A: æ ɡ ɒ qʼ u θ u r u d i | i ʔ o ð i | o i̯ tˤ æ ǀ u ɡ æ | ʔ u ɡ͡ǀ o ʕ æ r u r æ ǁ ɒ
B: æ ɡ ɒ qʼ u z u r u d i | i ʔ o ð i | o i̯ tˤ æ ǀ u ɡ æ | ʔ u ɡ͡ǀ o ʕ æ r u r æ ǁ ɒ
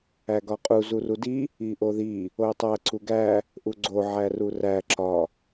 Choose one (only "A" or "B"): B